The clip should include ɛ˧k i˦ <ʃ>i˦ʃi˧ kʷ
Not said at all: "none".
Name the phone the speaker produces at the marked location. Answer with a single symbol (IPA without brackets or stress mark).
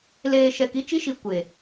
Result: t͡ʃ